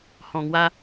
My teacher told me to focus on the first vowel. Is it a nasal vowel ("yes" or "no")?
yes